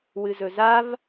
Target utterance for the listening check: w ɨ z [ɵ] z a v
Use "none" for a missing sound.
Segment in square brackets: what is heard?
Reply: ɵ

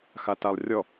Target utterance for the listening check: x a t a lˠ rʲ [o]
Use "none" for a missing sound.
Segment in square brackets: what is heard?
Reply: ɔ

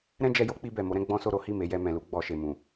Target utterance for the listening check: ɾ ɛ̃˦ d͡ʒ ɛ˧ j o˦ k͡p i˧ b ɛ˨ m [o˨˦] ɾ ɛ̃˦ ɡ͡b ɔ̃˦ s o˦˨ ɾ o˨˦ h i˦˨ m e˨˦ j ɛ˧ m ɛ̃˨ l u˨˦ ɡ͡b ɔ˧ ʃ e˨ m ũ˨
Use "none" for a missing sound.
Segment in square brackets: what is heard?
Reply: o˨˦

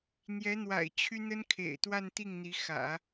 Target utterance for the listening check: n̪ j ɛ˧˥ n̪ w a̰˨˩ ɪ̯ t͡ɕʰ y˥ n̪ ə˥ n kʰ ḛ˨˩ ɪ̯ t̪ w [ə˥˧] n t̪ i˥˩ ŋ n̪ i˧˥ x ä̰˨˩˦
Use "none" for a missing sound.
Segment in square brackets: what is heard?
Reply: a˥˧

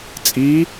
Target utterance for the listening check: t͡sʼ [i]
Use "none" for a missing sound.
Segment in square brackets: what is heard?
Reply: i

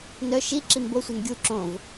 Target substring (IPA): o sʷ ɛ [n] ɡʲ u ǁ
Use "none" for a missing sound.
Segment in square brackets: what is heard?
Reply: n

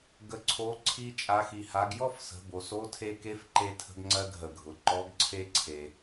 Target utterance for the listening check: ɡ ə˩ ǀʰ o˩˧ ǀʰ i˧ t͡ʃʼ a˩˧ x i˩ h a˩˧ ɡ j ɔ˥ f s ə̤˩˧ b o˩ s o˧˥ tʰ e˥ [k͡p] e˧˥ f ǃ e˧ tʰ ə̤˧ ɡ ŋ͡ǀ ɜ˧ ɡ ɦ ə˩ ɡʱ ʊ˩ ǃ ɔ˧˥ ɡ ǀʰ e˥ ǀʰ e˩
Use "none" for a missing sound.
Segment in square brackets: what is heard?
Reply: k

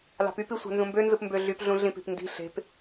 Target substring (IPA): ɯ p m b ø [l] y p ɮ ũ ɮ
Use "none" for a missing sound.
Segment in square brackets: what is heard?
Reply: ɮ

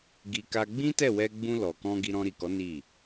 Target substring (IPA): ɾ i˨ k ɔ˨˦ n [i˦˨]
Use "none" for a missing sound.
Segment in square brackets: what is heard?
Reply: i˦˨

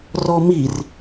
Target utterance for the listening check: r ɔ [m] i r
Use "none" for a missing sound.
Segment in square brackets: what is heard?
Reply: m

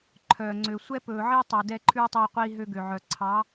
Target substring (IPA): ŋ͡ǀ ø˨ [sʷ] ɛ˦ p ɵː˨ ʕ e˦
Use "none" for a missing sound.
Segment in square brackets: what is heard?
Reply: sʷ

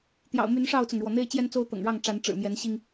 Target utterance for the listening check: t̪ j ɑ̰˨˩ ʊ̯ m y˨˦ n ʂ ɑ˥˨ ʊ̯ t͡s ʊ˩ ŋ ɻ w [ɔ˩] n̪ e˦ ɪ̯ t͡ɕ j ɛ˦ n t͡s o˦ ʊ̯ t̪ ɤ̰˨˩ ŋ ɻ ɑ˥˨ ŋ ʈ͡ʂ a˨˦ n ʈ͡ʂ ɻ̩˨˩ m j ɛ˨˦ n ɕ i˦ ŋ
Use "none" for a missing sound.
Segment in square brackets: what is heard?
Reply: ɔ˩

